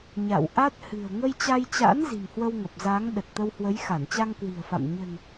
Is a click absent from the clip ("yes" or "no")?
yes